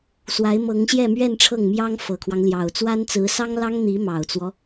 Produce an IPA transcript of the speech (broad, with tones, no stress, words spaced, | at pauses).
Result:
swa˧˥ɪ̯mɤ˧˥ŋɕjɛ˥˧mɥɛ˥˧n ʈ͡ʂʰɤ˥˩ŋmjɑ˥ŋ fɤ˨˩kʰwɑ˦ŋljɑ˨˩ʊ̯ t͡swa˥nt͡sɹ̩˧˥ sɑ˥ŋlɑ˥ŋn̪i˧˥ mɑ˨˩ʊ̯t͡swɔ˦